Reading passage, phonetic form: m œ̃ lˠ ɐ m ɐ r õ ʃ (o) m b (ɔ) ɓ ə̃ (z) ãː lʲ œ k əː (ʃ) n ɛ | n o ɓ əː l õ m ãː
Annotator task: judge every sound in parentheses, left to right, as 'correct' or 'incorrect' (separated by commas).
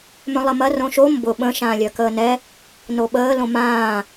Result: correct, incorrect, incorrect, incorrect